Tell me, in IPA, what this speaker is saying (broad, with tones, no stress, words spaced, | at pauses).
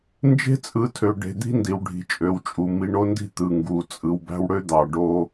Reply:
nd͡ʒe̤˦t͡sʼɯ˨˦tʰø˨ ɖe̤˨d̪i̤˦ ndi˨wɖʱi̤˨t͡ʃʼø˨wt͡ʃʼu˨ mi˨ɳo˦ndi̤˦ t̪ɯ˨ ŋɡu˨ t͡sʼɯ˨wbæ̤˦wɽø˦d̪ɑ˨ ɖo˦